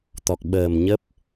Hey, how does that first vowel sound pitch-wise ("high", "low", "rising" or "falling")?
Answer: low